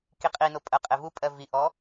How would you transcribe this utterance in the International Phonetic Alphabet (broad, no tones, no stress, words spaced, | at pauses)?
kiqʼino pʼɜqʼevupʼɜ viʔɔ